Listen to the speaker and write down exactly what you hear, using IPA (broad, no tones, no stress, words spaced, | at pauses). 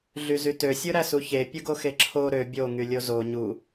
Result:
ɮyzytø sʲɯɾæsuçe pʲɯɡoxeǁʰo ɾø bʲo ŋylʲozo ɲu